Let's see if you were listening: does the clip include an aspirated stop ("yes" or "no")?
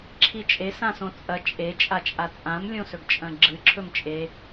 yes